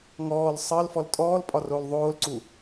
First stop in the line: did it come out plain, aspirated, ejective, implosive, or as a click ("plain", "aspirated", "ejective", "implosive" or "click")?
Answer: ejective